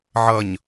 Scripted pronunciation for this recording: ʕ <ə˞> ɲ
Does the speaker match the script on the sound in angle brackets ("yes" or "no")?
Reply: no